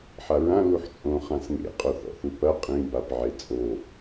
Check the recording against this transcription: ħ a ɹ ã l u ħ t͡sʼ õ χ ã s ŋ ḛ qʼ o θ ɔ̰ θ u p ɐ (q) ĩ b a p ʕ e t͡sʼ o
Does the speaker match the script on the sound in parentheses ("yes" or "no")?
no